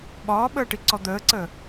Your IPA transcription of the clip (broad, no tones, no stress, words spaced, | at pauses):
ɓɒːɓəːʈiǀɔ d̪əːǀəː